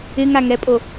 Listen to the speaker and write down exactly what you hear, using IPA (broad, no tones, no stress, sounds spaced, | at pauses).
ɪ ŋ a ŋ ɛ pʼ o